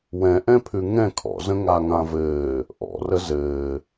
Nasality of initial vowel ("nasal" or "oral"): nasal